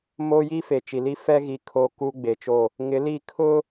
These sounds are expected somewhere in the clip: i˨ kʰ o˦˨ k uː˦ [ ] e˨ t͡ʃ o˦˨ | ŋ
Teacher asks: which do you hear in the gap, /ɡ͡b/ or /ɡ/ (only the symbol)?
ɡ͡b